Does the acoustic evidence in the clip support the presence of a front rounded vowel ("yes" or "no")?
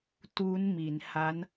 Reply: no